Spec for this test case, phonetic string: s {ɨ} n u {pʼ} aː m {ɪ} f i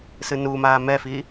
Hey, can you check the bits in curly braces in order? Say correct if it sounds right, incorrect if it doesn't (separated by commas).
correct, incorrect, incorrect